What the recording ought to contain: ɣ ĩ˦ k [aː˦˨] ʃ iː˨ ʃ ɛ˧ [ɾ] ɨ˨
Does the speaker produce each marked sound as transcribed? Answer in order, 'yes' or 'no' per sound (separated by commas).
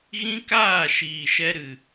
yes, yes